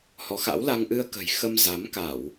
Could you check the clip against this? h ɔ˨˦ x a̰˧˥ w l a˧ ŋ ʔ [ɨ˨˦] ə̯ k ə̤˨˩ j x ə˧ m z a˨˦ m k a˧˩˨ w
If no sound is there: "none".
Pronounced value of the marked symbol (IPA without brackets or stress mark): ɨ˧